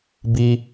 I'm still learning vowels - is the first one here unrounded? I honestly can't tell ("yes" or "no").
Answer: yes